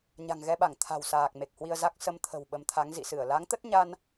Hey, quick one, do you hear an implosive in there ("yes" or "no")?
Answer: yes